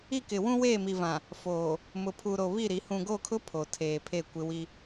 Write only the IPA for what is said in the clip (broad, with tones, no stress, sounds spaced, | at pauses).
i˦˨ k ɪ˨ w ũ˦ w eː˦˨ m i˨ v ã˨ | f oː˨ | m ʊ˨ pʰ u˨ ɾ o˨ β i˦˨ ɾ i˨˦ h ũ˨ ɡ o˦˨ kʰ ʊ˦ pʰ o˨ tʰ eː˨ pʰ eː˦˨ kʷ ɪ˦ w i˦